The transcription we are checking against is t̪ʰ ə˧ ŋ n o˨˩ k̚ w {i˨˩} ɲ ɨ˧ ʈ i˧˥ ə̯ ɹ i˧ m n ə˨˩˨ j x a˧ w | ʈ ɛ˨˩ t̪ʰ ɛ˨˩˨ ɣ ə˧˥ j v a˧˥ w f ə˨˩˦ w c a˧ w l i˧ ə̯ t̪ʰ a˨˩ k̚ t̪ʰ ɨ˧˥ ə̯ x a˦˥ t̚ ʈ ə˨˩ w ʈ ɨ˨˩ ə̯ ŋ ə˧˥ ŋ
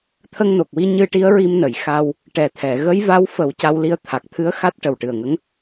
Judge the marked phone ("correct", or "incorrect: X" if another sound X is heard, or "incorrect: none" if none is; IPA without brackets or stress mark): incorrect: i˧